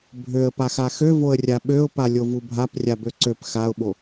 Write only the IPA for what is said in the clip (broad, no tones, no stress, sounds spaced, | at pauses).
bʱ ø ə̯ p a x a x ø v o ə̯ rʲ a ɓ ø ʊ̯ p a lʲ o v u bʱ a p rʲ a b ø ǀ ø p x a ʊ̯ ɓ o